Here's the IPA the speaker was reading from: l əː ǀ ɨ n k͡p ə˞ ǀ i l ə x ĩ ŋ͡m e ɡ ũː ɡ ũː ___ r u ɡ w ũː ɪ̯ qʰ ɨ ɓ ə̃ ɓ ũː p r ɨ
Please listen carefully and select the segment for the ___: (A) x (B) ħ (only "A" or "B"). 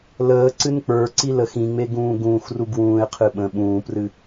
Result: A